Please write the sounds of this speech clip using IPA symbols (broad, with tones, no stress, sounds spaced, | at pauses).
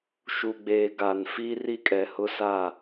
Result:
ʃ u˨ ɡ͡b eː˨ ɡ a˨ n f i˦ r i˦ kʼ ɛ˨ h ʊ˦ s a˦˨